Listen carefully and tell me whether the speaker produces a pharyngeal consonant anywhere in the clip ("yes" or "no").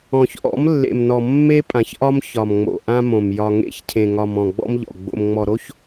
no